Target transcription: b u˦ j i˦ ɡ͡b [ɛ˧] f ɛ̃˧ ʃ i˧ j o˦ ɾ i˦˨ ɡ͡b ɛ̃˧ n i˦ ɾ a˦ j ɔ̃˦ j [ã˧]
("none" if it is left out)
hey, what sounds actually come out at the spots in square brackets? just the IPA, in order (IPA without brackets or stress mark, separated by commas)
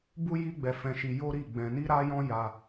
ɛ˧, a˧